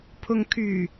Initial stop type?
aspirated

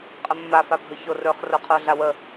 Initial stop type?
ejective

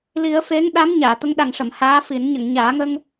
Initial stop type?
implosive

